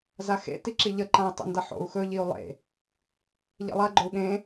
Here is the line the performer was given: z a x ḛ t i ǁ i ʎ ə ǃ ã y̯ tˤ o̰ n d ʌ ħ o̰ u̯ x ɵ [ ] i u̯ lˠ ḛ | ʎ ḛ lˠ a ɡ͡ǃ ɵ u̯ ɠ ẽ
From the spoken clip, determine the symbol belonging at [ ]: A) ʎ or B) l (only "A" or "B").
A